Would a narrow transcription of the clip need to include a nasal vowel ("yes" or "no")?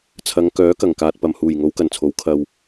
no